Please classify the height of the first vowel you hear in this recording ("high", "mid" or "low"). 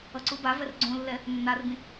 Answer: mid